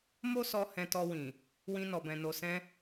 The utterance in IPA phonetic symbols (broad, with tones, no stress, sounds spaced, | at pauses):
m o˦ s ɔ˧ h ɛ̃˧ t ɔ˧ w ĩ˨ | w ĩ˧ n ɔ˨ b ɛ̃˨ n o˨ s ɛ̃˧